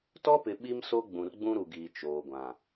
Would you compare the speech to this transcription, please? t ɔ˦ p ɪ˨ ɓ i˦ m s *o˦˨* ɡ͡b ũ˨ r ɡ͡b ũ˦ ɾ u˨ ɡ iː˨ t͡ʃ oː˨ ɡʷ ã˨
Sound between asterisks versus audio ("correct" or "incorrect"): incorrect